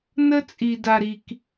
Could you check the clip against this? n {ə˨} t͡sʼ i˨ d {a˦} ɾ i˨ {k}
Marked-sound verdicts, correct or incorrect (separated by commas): incorrect, incorrect, correct